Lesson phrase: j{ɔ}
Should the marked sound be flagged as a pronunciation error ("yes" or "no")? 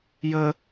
yes